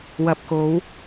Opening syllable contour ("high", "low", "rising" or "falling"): low